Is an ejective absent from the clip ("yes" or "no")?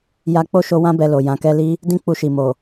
yes